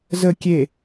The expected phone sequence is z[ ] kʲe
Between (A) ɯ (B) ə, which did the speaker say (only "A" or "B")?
B